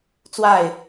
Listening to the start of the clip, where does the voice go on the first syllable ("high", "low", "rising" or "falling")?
falling